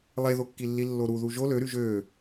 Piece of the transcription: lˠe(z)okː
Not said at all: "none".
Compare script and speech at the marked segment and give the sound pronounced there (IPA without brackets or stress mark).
ð